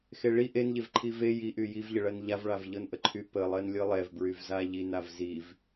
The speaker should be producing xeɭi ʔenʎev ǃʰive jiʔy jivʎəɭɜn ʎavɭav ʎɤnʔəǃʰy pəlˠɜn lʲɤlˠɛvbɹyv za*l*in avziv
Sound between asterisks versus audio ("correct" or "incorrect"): incorrect